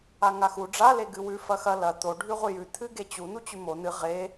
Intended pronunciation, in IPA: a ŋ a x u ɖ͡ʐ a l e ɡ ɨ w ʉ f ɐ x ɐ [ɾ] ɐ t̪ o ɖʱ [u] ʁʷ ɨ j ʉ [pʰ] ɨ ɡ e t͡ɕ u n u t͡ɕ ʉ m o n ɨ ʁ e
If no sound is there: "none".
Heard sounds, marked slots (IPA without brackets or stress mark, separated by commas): l, ʉ, t̪ʰ